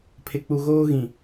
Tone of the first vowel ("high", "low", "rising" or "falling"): low